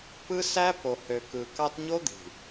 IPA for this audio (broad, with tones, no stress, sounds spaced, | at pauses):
p ɯ˦ s æ˦ p o˨ h ø˨ k ɯ˨ k ɑ˦ t ɲ o˦ d̪ i̤˨